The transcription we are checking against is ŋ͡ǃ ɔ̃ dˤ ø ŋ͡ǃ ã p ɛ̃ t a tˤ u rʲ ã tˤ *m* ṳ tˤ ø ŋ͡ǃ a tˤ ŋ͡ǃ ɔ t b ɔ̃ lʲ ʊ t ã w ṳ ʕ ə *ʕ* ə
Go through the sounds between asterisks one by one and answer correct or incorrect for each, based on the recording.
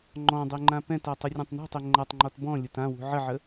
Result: incorrect: n, correct

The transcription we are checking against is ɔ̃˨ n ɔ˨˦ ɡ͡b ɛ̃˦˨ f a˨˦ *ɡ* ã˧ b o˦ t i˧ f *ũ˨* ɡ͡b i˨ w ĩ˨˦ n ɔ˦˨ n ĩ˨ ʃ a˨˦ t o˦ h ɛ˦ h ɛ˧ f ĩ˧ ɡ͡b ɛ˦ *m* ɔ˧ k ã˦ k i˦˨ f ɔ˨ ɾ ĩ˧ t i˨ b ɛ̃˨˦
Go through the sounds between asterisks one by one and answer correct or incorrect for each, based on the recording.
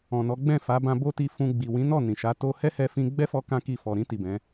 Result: incorrect: b, incorrect: ũ˧, incorrect: f

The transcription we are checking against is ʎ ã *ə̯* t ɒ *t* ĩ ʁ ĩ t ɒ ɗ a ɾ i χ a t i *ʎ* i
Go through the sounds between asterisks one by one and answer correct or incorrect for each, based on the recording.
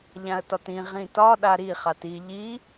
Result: correct, correct, correct

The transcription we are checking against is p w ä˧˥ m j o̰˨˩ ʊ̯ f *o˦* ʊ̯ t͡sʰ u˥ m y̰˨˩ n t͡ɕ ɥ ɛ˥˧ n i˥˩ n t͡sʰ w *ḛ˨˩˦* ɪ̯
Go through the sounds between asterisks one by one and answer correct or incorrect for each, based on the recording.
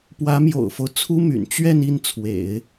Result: correct, correct

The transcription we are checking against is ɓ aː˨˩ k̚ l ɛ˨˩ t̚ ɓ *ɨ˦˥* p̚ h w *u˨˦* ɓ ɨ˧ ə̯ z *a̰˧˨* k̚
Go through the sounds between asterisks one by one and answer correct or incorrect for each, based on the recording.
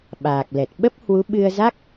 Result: incorrect: ə˦˥, correct, incorrect: a˦˥

